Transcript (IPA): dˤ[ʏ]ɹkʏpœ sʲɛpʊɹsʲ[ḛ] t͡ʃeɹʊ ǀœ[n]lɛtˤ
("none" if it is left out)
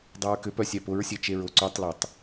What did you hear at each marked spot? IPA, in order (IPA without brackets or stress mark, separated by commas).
ɛ, e, tˤ